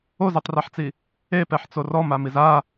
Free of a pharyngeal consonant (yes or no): no